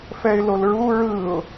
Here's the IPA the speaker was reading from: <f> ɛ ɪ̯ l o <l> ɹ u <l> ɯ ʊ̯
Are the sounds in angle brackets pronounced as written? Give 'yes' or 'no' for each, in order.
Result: yes, yes, no

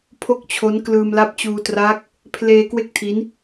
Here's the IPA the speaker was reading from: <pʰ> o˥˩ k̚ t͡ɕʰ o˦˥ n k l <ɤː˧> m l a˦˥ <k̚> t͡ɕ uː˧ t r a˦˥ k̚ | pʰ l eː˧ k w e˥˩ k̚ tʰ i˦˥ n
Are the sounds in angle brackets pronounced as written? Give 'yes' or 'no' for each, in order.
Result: yes, no, no

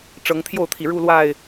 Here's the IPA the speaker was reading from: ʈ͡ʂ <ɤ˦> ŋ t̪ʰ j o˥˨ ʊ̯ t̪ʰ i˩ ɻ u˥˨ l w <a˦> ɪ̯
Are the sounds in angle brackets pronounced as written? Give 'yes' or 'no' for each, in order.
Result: no, no

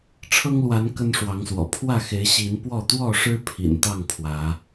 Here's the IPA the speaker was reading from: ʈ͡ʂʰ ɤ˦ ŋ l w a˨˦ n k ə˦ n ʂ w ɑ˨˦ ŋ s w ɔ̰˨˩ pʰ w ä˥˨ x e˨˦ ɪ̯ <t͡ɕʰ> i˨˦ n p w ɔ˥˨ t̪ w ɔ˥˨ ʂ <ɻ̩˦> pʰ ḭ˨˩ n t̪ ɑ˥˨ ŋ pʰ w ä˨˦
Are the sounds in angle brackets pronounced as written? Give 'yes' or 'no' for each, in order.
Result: no, yes

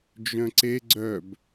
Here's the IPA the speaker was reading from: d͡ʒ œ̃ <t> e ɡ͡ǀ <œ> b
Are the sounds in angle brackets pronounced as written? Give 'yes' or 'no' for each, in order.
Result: no, yes

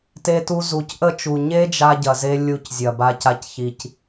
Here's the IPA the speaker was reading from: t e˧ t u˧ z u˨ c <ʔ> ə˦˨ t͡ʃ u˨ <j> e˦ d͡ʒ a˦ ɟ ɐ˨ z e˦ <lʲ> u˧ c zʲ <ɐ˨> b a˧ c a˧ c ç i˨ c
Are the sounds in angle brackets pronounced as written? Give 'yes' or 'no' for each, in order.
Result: yes, no, yes, yes

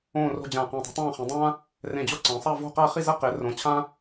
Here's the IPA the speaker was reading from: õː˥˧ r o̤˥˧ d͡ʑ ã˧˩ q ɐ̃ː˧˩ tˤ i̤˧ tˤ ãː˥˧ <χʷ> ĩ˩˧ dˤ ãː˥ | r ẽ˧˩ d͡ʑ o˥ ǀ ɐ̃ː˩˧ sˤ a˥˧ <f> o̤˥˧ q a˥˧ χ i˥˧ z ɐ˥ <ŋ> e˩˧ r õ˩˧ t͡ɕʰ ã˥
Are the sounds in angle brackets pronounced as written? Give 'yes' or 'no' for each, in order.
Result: no, no, no

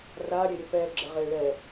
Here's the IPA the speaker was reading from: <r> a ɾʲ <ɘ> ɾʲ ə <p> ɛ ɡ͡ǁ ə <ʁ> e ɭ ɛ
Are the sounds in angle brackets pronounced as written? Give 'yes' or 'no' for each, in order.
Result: yes, yes, yes, yes

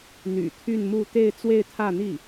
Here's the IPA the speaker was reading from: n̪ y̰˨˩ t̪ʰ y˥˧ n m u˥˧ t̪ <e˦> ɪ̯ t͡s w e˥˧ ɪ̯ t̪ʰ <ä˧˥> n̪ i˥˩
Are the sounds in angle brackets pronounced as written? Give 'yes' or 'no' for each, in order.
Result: no, no

